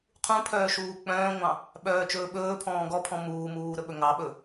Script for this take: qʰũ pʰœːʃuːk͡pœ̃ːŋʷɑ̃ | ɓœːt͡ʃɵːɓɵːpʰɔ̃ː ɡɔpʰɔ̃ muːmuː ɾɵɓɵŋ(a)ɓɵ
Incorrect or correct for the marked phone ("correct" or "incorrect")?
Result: incorrect